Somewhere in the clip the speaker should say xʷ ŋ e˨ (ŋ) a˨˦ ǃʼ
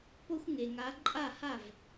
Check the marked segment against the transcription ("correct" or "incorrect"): correct